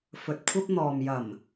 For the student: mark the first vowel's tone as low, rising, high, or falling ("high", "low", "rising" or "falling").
low